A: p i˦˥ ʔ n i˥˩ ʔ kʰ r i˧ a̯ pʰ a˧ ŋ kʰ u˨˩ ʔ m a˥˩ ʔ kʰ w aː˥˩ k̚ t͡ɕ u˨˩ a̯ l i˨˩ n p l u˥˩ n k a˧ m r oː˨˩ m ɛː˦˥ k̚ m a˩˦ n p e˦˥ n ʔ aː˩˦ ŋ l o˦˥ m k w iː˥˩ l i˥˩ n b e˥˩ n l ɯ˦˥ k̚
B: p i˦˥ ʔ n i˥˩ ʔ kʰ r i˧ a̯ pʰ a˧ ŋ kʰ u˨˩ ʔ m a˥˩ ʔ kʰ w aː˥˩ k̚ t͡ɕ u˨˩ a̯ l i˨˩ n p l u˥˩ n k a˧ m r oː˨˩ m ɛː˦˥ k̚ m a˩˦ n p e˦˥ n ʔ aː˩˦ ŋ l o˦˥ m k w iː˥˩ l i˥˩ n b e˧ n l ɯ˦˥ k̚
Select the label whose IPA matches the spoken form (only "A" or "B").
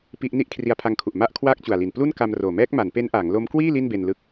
B